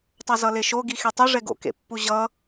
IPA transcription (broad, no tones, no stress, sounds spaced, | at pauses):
tˤ a z ʌ l e ʃ o ɡ i x e tˤ u ʐ ɛ ɡ o̰ k ḛ pː u ʑ ʌ